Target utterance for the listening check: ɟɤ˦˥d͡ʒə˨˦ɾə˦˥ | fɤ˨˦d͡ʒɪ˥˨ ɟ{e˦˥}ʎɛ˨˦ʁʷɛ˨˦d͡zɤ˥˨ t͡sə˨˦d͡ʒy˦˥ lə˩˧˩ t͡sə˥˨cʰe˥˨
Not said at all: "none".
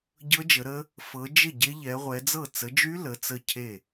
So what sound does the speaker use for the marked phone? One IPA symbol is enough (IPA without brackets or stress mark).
e˦˥